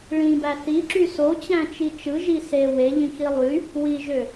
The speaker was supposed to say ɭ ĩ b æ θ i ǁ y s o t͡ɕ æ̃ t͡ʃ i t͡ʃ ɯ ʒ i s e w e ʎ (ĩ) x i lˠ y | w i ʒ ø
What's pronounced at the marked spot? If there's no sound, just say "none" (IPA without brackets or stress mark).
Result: ĩ